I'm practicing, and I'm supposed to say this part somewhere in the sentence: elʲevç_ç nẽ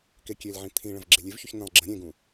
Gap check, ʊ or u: u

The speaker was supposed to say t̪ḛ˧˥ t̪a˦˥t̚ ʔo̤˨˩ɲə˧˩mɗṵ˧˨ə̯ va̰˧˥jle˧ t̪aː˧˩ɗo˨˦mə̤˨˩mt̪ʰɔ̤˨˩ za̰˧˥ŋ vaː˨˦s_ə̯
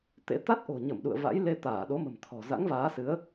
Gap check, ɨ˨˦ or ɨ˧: ɨ˨˦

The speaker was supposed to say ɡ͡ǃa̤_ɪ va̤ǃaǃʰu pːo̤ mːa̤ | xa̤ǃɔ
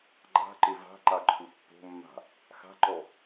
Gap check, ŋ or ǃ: ǃ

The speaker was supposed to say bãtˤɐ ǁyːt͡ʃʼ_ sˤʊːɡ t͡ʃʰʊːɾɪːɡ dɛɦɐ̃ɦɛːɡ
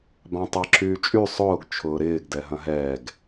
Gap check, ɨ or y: y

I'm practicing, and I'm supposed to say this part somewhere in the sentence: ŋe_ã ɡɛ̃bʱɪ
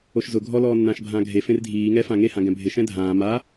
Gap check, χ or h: h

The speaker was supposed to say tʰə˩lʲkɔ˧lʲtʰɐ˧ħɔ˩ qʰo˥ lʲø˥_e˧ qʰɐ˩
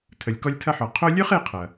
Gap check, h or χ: χ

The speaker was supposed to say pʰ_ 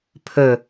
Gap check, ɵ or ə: ɵ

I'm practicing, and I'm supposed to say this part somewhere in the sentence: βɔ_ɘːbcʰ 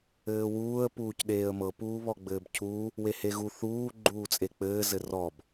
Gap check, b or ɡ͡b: ɡ͡b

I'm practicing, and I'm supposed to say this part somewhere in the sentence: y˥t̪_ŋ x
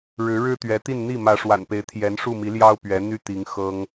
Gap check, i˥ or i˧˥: i˧˥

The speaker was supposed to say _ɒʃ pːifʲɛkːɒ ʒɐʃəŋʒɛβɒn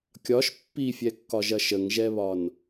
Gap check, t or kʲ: kʲ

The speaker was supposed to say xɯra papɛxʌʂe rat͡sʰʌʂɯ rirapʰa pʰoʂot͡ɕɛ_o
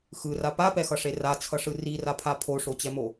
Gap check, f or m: m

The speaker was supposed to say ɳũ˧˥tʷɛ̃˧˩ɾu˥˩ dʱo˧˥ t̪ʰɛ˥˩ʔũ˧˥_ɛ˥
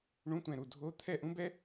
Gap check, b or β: b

